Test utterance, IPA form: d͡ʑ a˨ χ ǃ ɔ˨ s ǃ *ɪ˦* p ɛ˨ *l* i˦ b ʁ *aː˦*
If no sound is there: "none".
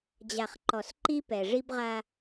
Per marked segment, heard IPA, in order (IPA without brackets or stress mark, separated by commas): i˦, ʐ, a˦